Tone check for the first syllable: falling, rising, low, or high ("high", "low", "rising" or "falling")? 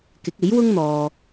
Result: rising